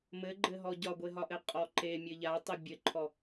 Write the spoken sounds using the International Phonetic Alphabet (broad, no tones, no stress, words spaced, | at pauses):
mɘɡ͡ǃɘɦɔ ɟɒɡʷeɦɒʔɘ qʼɔǃe mʲɘʎatˤe bʲɘǃʰɔ